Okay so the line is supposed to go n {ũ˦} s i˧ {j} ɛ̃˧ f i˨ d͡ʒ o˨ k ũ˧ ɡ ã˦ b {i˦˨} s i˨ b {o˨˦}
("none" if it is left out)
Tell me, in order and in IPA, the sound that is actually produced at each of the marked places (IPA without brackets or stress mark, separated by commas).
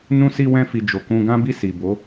ũ˦, w, i˦˨, o˨˦